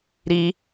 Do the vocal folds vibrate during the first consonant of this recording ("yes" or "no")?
yes